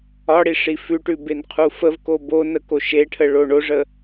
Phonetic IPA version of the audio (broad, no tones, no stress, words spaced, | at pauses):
ɒɽi ʂifʉʈʉ benqʰufəvko bonə koʃeʈʰə ɭoɳoʐə